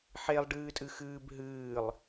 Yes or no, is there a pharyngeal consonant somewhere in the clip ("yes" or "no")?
yes